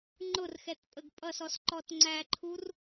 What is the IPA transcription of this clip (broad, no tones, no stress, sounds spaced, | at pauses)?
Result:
ŋ͡ǃ ʊ r x ɛ t pʼ ə ɡ pʼ ʌ s ɔ s ǃ ɔ t ŋ͡ǀ æ ǃʰ u r